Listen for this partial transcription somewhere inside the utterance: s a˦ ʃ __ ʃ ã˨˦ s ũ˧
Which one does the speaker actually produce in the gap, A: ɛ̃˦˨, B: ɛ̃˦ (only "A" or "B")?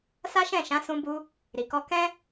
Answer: A